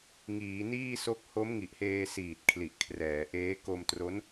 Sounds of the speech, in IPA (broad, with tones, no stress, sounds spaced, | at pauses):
ŋ iː˩˦ n iː˥˩ s o˦˥ k̚ h o˦˥ m ŋ i˨˩ ʔ h eː˧ s iː˨˩ t̚ kʰ l i˨˩ ʔ kʰ r ɛː˩˦ ʔ eː˦˥ k o˧ m t r o˦˥ n